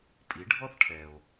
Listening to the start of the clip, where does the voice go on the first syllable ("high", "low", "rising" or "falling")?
rising